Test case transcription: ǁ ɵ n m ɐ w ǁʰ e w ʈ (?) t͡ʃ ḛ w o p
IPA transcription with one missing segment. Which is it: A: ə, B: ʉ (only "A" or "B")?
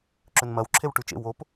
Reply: B